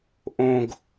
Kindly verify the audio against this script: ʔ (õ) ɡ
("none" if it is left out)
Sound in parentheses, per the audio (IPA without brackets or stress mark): õ